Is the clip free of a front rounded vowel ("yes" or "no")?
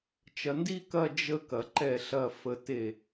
yes